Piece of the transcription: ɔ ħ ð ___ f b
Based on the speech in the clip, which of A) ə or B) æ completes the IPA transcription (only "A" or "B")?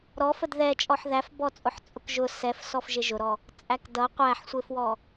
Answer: B